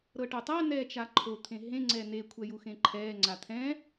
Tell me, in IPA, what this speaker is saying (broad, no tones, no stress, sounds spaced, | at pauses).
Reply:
ɾ ɤ ʈ o tˤ a n ɛː t͡ʃ a ǃʰ o t̪ʰ ẽ ɦ ẽ ŋ͡ǀ ɛ n e kʷʰ ɛ j u x ẽ ǃʰ ɛː ŋ͡ǀ a t̪ʰ ɛ̃